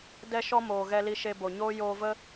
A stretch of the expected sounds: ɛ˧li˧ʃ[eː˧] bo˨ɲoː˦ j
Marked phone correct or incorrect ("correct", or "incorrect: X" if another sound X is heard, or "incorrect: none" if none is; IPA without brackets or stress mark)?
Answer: incorrect: e˧